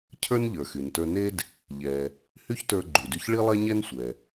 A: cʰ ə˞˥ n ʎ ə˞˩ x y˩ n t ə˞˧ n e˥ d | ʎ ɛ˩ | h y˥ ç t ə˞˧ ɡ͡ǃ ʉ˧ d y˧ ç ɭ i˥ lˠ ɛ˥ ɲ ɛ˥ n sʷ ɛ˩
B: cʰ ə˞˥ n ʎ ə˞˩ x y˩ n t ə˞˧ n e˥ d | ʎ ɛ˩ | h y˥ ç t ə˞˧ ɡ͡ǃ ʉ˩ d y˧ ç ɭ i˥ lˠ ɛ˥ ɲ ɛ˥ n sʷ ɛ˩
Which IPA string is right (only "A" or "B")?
B